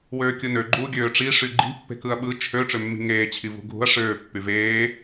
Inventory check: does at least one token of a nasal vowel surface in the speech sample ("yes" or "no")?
no